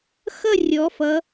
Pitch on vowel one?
falling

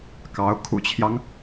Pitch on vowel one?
rising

